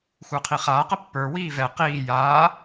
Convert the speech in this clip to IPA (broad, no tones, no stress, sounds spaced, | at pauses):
xʷ ə˞ qʰ i χ aː q ə pː ə˞ w iː v ɛ q iː j aː